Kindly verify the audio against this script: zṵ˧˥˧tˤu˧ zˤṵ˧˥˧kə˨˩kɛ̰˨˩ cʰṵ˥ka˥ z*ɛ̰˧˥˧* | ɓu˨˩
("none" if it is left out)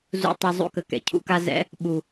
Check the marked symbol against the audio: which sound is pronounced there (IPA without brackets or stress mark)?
ɛ̰˧˥˧